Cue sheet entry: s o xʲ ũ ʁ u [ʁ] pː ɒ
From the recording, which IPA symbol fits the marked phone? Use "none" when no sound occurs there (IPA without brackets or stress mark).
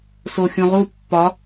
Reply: none